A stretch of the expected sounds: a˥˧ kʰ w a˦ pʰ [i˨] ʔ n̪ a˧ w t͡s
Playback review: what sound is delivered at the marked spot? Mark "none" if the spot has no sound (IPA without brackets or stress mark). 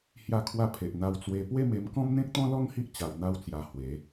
e˨